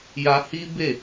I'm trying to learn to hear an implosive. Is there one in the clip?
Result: no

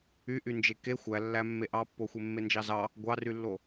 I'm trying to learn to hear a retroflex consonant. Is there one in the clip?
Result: no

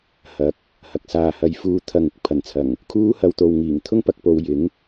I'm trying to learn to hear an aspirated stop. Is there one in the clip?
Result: yes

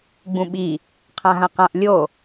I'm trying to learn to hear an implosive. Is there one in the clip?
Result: yes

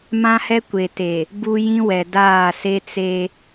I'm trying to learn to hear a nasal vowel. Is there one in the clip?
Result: yes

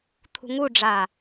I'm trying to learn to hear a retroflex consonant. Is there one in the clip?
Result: yes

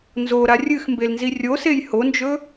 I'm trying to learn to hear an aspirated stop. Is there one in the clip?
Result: no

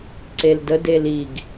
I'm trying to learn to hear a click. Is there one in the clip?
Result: yes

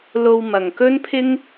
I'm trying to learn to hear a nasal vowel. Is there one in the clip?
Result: no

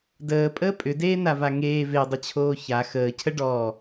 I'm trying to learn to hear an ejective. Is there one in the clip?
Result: yes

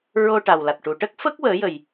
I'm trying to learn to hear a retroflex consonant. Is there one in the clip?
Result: yes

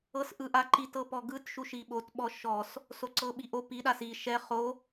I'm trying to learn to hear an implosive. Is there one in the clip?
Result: yes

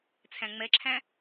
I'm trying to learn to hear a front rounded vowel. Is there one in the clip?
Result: no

